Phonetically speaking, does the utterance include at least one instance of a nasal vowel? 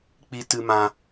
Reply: yes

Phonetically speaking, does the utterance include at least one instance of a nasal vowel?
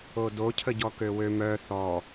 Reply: no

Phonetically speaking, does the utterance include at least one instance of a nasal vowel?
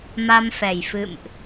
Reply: no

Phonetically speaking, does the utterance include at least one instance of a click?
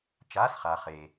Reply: no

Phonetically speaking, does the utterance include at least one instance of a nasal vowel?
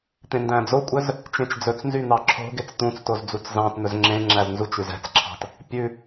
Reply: yes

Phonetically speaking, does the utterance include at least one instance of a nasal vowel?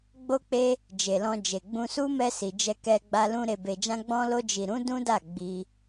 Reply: yes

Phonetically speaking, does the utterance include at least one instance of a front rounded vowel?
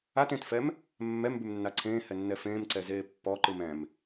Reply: no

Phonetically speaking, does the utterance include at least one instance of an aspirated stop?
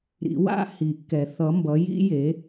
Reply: no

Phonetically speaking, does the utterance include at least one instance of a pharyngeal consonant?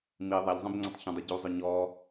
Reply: no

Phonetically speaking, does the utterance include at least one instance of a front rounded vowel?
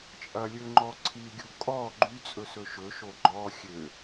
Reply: yes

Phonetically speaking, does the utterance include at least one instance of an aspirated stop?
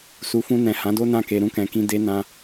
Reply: no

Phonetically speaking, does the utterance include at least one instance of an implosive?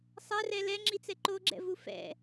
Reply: no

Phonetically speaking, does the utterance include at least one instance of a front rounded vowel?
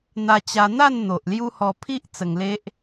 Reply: no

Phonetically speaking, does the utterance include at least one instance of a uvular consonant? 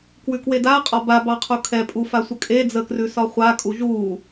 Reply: yes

